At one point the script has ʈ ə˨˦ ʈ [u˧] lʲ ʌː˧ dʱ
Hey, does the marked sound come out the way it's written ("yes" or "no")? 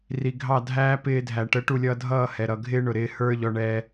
yes